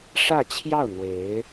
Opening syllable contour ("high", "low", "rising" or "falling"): falling